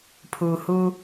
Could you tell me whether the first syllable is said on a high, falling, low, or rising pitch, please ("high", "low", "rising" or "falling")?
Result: low